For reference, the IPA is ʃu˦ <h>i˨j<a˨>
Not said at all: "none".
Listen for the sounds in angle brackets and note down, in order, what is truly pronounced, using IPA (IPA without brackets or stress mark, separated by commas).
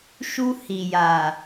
h, a˨